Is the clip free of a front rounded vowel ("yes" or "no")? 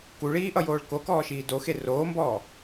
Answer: yes